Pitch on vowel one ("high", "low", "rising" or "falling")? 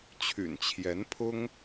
low